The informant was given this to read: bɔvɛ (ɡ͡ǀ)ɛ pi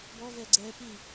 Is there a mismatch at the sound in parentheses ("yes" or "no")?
no